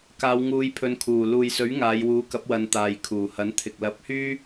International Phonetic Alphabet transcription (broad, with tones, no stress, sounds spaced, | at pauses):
k aː˨˧ w ŋ uː˨˧ j pʰ ɵ˨˧ n kʰ uː˨˩ l uː˨ j s ɵ˨˥ ɥ ŋ aː˨˧ j w uː˨˥ k ɐ˨˥ p̚ w ɐ˨˧ n t̪ aː˨ j kʰ uː˨˩ h ɐ˨˥ n t̪ʰ ɪ˨ k̚ l ɐ˨˥ p̚ h yː˥